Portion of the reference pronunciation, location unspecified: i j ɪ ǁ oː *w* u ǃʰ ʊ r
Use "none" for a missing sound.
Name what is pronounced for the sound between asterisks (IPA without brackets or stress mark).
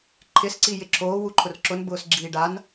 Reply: w